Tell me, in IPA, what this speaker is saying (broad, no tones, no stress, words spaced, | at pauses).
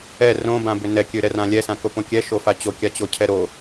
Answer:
ɛ rõbãbʏ nɛkʲøɾɛrã lʲɛsãkopõ kʲɛʃofa t͡ɕokʲat͡ɕocʰɛ ɾo